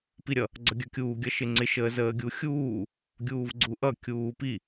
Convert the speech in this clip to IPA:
p i ɾʲ ʌ | ɡ͡ǀ ʌ ɡʲ ə˞ kʲ uː ɡʲ ʌ ʃ ɪ ŋ͡ǀ ɪ ʃ əː z əː ɡʲ u xʲ uː | ɡʲ uː v ɡ͡ǀ u ʔ ʌ kʲ uː p i

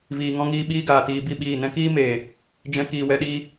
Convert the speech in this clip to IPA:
v iː˧ ŋ ɔ̃˦ ŋ iː˦ ɓ iː˦ ɡ aː˨ t iː˧ b i˦˨ ɓ iː˦˨ n ɛ̃˦ k iː˦ m eː˨ | d͡ʒ ɛ̃˦ k iː˧ w ɛ˦ ɗ iː˦

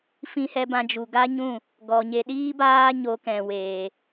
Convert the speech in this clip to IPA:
f ĩ˧ h ɛ˧ b ã˧ d͡ʒ u˨ ɡ a˦ ɲ ũ˦˨ | ɡ ɔ˨ ɲ e˧ ɗ iː˦ b aː˦ ɲ o˧ k ɛ̃˨ w eː˨

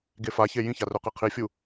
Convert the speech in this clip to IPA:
ɡ e f a ç e j ĩ ç a r ɵ q e qʰ i fʲ u

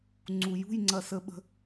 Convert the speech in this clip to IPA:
ŋ͡ǀ u˩ j ṳ˧˩ j ŋ͡ǀ ɐ˩ s ə˩ ɓ ə̤˩

